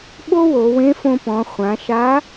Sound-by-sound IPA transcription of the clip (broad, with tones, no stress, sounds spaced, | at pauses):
ɓ o˥ w o˩˧ w ẽ˧˥ f õ˧ p ɔ̃˩˧ χʷ ã˩˧ ʃ a˧˥